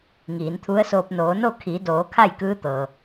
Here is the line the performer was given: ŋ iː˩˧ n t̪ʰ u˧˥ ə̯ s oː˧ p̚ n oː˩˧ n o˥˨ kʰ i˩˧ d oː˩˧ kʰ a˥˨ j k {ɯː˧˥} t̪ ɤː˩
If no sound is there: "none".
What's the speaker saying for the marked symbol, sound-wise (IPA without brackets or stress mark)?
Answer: ɯː˧˥